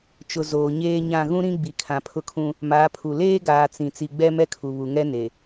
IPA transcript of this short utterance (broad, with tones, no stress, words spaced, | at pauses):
t͡ʃʊ˨ zoː˨ɲeː˦ɲã˦˨ ɣũ˦ɾĩ˦ɡ͡bi˨ kʰã˨pʰʊ˦kʰũ˦ | maː˨˦pʰu˨ leː˦ɡaː˨ t͡sĩ˨ t͡si˨ ɡ͡bɛ˦mɛ˦kʰu˨ βu˨ŋɛ˦ne˨